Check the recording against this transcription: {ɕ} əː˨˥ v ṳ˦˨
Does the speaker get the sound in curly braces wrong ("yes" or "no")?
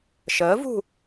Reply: yes